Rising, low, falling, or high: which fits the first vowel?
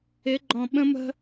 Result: rising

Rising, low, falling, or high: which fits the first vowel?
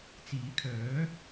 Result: rising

